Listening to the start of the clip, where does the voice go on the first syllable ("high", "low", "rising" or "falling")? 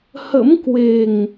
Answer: rising